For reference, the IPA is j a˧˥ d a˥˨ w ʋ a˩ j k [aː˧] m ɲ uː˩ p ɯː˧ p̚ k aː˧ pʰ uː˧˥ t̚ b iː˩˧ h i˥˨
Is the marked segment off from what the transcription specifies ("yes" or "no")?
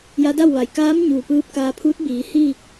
yes